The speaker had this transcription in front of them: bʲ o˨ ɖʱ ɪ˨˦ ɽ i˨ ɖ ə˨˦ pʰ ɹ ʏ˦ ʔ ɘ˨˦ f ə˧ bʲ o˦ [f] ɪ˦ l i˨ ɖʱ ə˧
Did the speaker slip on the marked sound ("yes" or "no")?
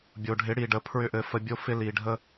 no